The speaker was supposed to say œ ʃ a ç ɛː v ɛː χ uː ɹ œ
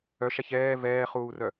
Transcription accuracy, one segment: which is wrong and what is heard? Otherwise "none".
ɹ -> r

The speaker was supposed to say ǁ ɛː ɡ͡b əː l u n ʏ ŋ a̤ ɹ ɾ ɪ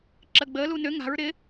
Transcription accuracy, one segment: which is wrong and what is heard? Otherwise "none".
ɛː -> əː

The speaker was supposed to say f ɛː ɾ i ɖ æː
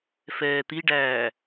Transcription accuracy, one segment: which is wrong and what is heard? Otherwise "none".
ɾ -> t̪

